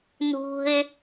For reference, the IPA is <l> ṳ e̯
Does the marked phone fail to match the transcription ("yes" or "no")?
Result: yes